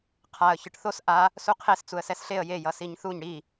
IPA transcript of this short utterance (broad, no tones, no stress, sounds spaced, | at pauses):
qʰ a ə̯ ç ɯ ʈ θ o s ʔ a | s u qʰ e s t͡s u ə̯ s ɛ s ɬ e ə̯ j e j ʌ s i ɲ θ u ɲ ɽ i